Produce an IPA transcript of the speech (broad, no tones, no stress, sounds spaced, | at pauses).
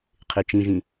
qʰ e t͡ʃ ĩ ʒ ĩ